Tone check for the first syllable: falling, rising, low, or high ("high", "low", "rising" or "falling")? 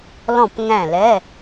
falling